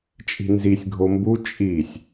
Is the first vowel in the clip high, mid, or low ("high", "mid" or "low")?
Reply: high